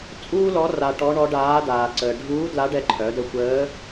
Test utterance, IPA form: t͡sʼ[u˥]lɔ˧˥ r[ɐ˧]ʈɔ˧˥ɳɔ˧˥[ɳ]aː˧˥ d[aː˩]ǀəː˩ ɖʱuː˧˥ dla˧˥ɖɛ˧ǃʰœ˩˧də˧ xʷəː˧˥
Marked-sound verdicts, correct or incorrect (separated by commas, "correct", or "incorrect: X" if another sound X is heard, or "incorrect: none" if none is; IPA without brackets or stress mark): incorrect: uː˥, incorrect: a˧, incorrect: ɖ, correct